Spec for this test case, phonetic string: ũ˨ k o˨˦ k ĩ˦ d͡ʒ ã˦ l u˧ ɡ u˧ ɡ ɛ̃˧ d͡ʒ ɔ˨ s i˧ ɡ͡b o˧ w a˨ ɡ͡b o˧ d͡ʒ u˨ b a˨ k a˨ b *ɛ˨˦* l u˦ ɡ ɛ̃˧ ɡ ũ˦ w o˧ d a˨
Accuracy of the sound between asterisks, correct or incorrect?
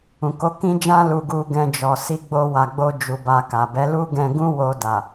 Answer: correct